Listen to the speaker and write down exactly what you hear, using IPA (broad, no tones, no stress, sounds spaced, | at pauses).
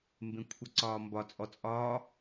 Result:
m b ẽ kʷʰ ə ǀ ɒː m b ɒ t͡sʼ ɔ t͡sʼ ɒː